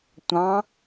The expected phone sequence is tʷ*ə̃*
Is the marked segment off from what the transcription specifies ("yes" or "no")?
yes